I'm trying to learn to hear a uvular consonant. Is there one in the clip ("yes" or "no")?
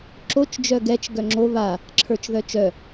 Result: no